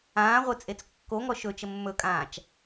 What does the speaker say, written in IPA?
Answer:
ãː ʁʷ e t͡sʼ e t͡s kː o ŋ ɔ ʃ ɵ t͡ʃ ə mː ɵ kʼ ãː t͡ʃ

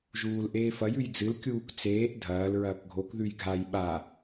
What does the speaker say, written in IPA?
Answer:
ʒ uː l ʔ eː f ɐ j ʉ j d͡z ɨ l kʲ uː k t͡s eː ʔ dʱ ɐː l ɹ ɐː k ɡʱ o k ð ʉ j ɡʱ a j ɓ a

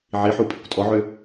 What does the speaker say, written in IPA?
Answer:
ʕ i ħ u pʼ i kʷ tʼ ɔ ʕ ø

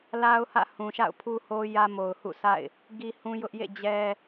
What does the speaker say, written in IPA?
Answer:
l a˦ ʊ̯ h ä̰˦˨ h ũ˨ ʃ a̰˦˨ ʊ̯ pʰ u˦ h o˦ j ä˦ m o˨ ʊ̯ h ṵ˦˨ sʰ a̰˦˨ ɪ̯ | ɡ i˦ h ũ˦ j ʊ˦ ʔ j ḛ˦˨ d͡ʑ ɛ˦

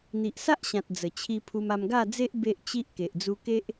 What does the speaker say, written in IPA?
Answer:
n̪ i˨ ʔ s a˦ ʔ ɕ ã˨ t̚ d͡z ə˨˩ t͡ɕʰ i˧ pʰ u˧ m a˧ m ɡ a˥˧ d͡z e˦ ʔ b e˦ ʔ t͡ɕ i˦ ʔ k e˨ ʔ d͡z u˧ k e˦ ʔ

